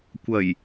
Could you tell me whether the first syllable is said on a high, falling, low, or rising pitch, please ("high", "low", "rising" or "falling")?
low